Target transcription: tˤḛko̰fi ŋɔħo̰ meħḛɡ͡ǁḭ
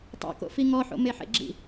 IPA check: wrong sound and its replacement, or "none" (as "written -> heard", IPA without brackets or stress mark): none